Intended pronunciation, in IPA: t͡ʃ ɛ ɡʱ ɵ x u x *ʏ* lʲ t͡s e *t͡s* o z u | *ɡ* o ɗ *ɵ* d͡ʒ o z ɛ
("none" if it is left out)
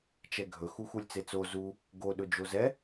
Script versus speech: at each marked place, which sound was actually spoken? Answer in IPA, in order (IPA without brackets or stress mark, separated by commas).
u, t͡s, ɡ, ɵ